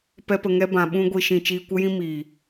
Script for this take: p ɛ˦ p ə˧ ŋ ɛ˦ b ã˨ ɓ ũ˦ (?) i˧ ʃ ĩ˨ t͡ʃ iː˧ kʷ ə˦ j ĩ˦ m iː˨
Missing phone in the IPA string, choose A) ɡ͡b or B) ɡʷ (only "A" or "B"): B